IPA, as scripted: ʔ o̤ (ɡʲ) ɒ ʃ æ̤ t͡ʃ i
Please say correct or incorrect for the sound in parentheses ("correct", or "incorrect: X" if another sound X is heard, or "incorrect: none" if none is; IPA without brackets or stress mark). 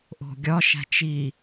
correct